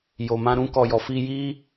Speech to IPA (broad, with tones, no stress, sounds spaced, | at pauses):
j o˨ m ã˧ ɾ ũ˧ k ɔ˨ j ɔ˨ f i˧ j i˦